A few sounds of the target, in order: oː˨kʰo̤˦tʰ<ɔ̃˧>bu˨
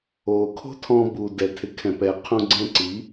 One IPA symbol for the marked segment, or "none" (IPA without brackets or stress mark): ɔ̃˧